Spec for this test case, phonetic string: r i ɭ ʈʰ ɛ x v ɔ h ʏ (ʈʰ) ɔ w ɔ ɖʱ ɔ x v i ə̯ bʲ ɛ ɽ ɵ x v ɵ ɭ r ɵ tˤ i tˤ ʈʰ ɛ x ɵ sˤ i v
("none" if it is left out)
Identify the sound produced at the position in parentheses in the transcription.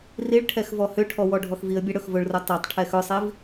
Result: ʈʰ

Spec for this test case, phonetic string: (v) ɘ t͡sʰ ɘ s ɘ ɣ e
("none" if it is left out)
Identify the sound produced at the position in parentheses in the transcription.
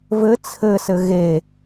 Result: v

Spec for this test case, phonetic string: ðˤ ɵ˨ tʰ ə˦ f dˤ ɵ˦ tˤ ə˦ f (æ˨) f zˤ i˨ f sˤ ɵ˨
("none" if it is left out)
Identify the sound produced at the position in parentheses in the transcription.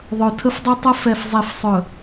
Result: ɛ˨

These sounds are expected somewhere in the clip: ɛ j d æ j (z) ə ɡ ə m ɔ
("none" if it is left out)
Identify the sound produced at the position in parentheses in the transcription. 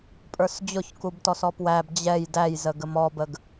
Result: z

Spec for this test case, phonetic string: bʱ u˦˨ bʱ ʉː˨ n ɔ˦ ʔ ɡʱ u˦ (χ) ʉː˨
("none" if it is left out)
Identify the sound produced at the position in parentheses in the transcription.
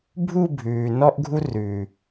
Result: r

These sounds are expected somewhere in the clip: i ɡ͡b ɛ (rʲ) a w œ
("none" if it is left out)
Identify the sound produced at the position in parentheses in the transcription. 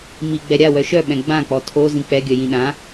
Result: ɾʲ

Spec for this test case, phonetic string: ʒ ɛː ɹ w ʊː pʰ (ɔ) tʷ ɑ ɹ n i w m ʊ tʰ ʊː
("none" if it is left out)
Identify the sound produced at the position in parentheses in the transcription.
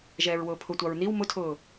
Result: ʊ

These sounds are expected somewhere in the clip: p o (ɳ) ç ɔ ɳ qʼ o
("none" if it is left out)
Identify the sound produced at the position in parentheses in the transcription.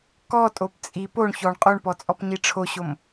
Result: ɳ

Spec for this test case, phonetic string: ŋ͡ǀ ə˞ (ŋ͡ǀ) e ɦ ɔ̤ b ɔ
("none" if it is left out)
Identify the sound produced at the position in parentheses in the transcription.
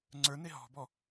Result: n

